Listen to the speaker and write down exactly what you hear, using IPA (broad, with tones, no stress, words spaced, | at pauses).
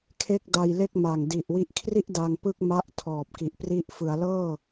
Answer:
kʰe˥˩k̚da˧jle˥˩k̚ma˨˩ŋ di˨˩ʔwi˦˥ʔkʰri˥˩ʔ da˧ŋpɯ˥˩k̚ ma˦˥ʔtʰɔː˨˩p̚ki˨˩ʔ pri˦˥ʔ fɯ˩˦a̯ lɤː˥˩